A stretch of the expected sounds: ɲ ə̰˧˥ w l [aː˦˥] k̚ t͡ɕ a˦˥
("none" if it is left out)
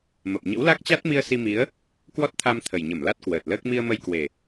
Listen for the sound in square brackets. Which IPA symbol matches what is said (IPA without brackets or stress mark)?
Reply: a˦˥